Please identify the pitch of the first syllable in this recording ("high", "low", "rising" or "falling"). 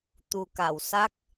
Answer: low